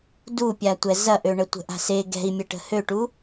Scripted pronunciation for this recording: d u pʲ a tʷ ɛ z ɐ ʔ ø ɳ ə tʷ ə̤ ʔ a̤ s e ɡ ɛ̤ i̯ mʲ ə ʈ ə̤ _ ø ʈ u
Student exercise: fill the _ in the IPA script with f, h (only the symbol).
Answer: h